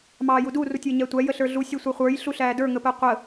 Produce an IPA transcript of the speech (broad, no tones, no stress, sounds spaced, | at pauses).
m ɑː j u d u r u tʲ əː ɲ æ tʷ æ j ə ɬ ə˞ ɮ u sʲ ɛ sʷ ɛ χʷ ə˞ j ɬ u ɬ æː d ə˞ ŋ ə p əː qʷ ə